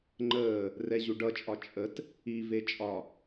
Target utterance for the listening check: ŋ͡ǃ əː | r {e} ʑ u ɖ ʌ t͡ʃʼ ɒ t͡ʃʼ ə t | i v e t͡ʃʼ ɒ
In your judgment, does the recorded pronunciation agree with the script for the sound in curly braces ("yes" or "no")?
no